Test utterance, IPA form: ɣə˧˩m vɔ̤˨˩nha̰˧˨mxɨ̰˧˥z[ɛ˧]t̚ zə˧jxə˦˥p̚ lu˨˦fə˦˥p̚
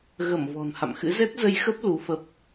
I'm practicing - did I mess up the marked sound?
yes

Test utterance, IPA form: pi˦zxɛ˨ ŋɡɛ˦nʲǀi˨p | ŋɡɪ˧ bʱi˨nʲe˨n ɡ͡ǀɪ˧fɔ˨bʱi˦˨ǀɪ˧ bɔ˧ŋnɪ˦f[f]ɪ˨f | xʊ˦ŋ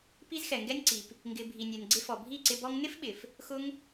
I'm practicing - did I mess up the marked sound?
yes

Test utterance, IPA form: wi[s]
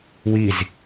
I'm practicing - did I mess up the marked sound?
yes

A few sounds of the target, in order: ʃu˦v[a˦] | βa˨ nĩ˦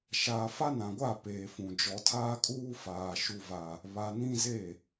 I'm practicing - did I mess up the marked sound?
no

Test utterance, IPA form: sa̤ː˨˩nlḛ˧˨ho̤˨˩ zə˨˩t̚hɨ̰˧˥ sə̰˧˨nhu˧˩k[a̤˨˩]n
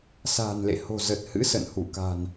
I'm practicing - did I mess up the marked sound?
no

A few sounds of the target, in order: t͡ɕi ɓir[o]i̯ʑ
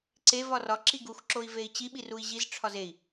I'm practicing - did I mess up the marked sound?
yes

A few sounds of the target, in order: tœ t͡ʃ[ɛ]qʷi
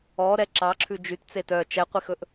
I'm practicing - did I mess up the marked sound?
no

